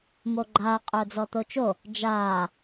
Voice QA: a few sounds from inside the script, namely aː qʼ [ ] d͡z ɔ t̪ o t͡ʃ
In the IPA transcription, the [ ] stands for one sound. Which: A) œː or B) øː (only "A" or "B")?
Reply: A